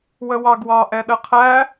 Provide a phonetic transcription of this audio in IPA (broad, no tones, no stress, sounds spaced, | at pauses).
w ə w ɑ ɡ w ɑ ʔ ɛ ɗ ə qʰ æ